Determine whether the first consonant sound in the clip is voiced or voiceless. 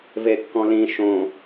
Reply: voiced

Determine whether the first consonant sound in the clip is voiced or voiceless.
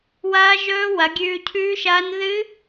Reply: voiced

